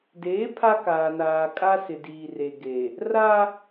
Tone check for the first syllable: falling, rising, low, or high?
rising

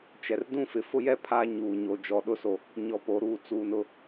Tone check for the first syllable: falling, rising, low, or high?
low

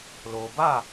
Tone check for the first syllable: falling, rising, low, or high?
low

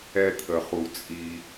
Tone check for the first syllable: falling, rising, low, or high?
high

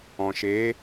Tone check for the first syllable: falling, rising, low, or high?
low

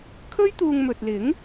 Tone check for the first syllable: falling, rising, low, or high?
high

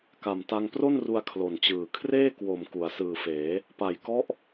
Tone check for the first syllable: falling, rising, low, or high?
low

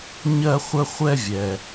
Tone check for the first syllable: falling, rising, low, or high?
high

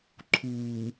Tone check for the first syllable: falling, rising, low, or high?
low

